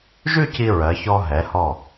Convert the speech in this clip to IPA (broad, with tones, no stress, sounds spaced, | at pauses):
ʒ ʉ˥˧ c i˧ ɹ ɜ˩˧ ç ɔ˧ ɦ ɛ˩˧ h ɔ˧˩